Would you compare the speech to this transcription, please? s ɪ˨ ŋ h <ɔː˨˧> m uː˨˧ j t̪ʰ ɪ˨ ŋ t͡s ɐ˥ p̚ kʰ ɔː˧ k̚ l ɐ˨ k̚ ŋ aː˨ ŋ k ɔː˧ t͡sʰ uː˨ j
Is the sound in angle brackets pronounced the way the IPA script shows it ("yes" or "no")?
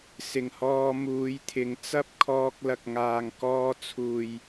no